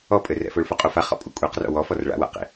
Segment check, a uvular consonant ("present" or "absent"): present